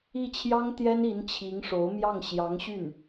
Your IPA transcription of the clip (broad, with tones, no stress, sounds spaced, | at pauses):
i˥˩ t͡ɕʰ j ɑ˥ ŋ t̪ j ɛ˥ n i˧˥ n t͡ɕʰ i˧˥ ŋ ʂ o˧˥ ʊ̯ m j ɑ˥˩ ŋ ɕ j ɑ˧˥ ŋ ɕ y˥˩ n